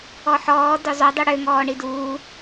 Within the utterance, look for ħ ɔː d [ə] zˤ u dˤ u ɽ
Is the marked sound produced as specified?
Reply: no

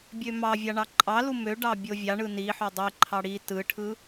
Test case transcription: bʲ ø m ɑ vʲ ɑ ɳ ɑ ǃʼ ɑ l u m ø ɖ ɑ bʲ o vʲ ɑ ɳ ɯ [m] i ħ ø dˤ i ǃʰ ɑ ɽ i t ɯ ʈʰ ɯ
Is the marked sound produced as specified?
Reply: no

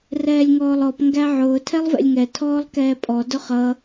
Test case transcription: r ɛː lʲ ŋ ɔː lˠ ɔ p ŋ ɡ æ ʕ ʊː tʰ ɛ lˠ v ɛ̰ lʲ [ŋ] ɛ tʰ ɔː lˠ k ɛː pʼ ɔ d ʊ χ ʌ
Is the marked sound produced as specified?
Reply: yes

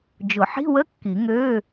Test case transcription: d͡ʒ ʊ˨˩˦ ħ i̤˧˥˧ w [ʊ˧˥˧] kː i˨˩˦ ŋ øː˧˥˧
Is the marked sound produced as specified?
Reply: no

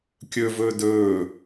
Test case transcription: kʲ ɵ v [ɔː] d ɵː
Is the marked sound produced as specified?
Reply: no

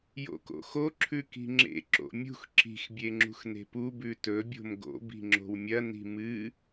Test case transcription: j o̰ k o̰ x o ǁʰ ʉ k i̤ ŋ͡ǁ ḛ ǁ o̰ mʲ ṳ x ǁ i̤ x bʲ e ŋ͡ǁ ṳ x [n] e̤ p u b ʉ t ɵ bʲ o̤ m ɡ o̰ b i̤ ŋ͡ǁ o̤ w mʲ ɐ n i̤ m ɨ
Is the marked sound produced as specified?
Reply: yes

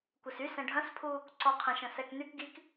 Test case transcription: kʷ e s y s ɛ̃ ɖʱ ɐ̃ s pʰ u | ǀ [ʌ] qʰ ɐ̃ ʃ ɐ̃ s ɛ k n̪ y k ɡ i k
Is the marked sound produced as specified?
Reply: no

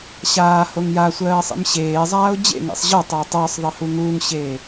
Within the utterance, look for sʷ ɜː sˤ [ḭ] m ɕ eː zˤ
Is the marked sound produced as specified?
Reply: yes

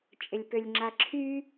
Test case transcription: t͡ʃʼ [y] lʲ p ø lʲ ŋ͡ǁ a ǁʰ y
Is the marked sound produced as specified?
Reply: no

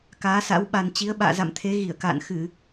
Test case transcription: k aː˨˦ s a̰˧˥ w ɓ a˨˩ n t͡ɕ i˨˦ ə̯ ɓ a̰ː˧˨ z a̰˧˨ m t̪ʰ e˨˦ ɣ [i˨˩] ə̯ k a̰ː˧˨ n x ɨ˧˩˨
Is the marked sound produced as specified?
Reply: no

